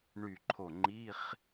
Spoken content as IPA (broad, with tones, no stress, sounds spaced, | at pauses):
ɳ y˧˩ ǃʰ o˧˩ ŋ͡ǃ i˧˥˧ χ